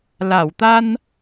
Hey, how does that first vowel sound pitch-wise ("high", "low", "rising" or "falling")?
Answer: low